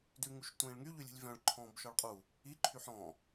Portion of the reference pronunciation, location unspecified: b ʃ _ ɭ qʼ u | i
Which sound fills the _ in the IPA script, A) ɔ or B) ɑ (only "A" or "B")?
A